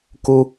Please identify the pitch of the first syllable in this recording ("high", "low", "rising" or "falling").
high